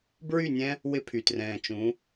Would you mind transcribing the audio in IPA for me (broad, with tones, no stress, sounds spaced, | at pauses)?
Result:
b ɹ y˦˨ nʲ ɛ̃˦ | w ɪ˦ pʰ y˨ t r ɛ̃ː˨ t͡ʃ ũ˨˦